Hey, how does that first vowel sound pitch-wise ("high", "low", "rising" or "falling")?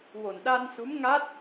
low